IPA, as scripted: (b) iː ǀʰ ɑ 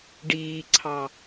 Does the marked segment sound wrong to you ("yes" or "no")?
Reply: yes